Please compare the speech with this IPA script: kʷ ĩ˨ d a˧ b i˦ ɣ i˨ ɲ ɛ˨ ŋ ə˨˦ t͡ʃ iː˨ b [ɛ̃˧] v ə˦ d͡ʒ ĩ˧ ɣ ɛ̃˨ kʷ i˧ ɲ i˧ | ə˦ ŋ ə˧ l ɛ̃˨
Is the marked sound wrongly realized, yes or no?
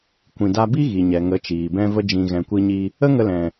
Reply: yes